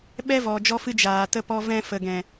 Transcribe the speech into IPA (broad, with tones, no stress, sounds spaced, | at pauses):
ɓ ɛ˦ v ɔ˨ d͡ʒ ɔ˧ f ɨ˧ d͡ʒ aː˨ t ə˧ p ɔ˧ v ɛ̃˧ f ə˨ ɡ ɛ̃˨